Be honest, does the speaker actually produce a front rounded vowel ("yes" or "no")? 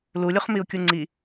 no